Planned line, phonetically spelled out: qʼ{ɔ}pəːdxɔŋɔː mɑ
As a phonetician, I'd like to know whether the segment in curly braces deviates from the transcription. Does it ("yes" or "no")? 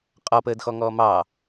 no